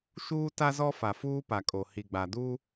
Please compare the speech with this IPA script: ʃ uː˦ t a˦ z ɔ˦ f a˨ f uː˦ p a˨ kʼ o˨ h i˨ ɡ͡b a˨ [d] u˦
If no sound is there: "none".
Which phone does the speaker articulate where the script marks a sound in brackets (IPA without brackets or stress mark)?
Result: d